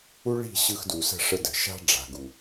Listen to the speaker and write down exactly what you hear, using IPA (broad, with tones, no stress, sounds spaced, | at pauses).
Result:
u˦ ɭ i̤˦˨ ɕ ɯ˧ x d u˨ s ə̤˦˨ ʂ ə˧ d ə̤˨ ʃ a̤˦ ɖ͡ʐ a̤˨ ɡ u˨